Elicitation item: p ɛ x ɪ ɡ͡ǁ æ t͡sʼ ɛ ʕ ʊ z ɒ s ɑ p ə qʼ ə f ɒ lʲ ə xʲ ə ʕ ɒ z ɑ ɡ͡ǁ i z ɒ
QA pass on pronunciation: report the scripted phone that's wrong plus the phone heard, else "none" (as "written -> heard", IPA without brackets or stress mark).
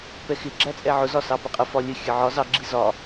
none